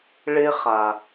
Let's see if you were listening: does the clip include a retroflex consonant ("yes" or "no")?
yes